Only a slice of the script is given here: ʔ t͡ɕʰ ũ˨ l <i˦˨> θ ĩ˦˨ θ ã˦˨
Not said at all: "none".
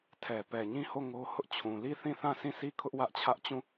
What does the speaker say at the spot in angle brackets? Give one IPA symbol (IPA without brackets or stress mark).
i˦˨